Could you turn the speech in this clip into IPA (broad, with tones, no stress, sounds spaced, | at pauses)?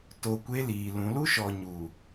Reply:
t o˨ kʷ e˦ l iː˨ l ũ˨˦ l u˦ ʃ ɔ˨ ɲ u˨